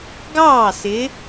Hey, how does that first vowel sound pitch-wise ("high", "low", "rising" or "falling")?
falling